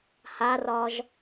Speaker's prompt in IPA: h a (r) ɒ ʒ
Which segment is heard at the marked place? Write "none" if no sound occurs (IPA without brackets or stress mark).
r